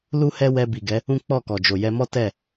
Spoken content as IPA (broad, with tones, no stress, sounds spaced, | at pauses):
l u˦ h ɛ˦ w ɛ˧ b i˨ ɡ ɛ˨˦ | ũ˦ k͡p ɔ˦˨ k ɔ˨ d͡ʒ o˨ j ɛ˧ m ɔ˦ t ɛ˦˨